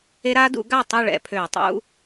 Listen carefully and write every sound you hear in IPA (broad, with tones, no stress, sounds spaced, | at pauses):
e˦˥ ɾ a˦˥ d ṵ˩˥ ɡ a˥˨ tˤ u˥˨ ɭ ɛ̰˩˧ pʰ ø˧˩˧ u̯ tˤ ṵ˧˥˧